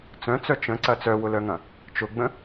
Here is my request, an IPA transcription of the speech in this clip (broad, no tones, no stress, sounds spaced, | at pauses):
t͡s œ̃ t͡s œ t͡ʃ ə̃ ǀ ɐ t͡s œ w ʊ l œ ŋ ɐ̃ | t͡ʃ ʊ ɡ͡b ə̃